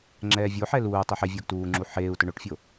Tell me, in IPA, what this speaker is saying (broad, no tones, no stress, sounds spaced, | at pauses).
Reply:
ŋ͡ǁ ɛː vʲ o ħ ɛ l uː tˤ i ħ e vʲ ʊː ɡ t uː ŋ͡ǁ u ħ eː u̯ t ʊ ɳ o ʈ fʲ o